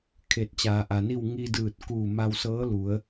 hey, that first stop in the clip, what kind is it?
aspirated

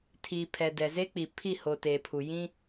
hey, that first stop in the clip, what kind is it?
aspirated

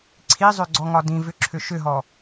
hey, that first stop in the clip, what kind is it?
click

